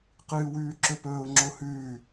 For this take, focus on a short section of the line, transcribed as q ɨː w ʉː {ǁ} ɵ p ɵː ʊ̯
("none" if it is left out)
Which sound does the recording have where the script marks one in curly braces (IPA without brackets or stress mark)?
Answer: ǁ